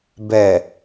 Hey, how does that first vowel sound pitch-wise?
low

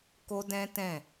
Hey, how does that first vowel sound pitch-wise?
high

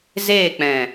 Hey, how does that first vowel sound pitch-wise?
falling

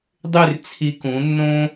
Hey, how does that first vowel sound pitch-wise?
falling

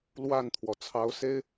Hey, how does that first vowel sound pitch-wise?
falling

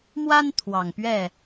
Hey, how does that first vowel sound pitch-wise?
high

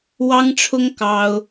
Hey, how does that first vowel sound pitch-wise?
high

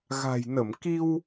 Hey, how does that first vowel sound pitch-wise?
low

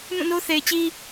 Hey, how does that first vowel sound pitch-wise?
falling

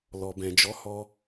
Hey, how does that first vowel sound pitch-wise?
low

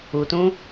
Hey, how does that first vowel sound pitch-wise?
low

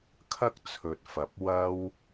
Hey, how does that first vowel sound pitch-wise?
high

